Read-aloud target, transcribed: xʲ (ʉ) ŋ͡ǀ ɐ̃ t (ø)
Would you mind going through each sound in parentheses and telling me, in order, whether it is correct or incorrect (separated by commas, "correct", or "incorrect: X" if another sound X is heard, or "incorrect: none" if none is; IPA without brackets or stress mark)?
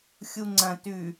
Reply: incorrect: u, incorrect: ʉ